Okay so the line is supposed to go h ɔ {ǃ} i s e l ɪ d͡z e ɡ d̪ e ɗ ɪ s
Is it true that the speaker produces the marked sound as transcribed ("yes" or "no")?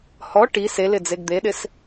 no